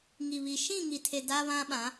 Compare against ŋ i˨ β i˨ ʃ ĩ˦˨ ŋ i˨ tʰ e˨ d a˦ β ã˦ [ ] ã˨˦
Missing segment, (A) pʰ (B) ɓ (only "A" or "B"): B